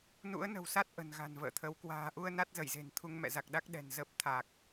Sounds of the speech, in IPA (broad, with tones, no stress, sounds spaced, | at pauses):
n ṵ˧˥ ə̯ n ə̤˨˩ w s a˦˥ t̚ ʔ ə̤˨˩ n ɣ a̤˨˩ n v ə̰ː˧˨ t̪ʰ ə˨˦ w k w a̤ː˨˩ ʔ u˧ ə̯ n a˦˥ t̚ z ə˧˩ j z e̤˨˩ n t̪ʰ u˧ ŋ m ɛ̰˧˨ z a˨˩ k̚ ɗ a˦˥ k̚ ɗ ɛ̤˨˩ n z ə˦˥ p̚ t̪ʰ a˨˩ k̚